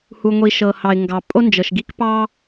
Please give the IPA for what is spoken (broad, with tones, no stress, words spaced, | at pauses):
hu˩ŋʷi˩ ʃɤ˩hɑ˩ɪ̯ ŋɡɑ˩ pʼo˥nd͡ʒɤ˩ʃɡi˥k pɑ˥